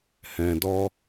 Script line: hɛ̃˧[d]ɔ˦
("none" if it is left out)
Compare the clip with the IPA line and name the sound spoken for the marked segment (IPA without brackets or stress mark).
d